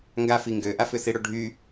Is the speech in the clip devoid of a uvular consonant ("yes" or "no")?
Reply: yes